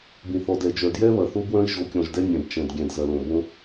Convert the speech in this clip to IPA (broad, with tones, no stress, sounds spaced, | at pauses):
b ĩ˨ θ ɔ˨ d ɛ˨ d͡ʒ œ˨ d j ɛ˦ β ɐ˨ θ o˦ b w œ̃˦ i̯ ʒ o˨˦ kʲ ɔ̃˨ ʒ d ɛ˦ nʲ ɛ̃˨ b t͡ʃ ɛ̃˨ d ɡʲ ɛ̃˨ d z ɐ˨ l õ˨ b õ˦